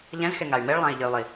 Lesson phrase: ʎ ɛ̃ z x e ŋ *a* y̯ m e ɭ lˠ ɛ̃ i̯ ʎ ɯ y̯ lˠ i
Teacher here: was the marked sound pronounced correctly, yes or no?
yes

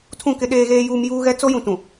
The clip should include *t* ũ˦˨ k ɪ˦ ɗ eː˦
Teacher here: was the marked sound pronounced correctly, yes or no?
no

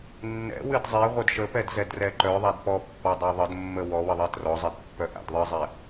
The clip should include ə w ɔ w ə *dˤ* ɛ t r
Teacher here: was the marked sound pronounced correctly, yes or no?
no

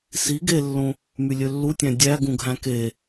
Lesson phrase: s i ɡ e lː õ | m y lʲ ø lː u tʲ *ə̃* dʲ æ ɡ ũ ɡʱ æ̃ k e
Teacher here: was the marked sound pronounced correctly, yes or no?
no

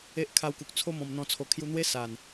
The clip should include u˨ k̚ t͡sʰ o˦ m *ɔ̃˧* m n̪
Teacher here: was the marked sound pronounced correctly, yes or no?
yes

